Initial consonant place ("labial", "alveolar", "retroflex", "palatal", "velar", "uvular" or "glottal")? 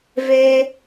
labial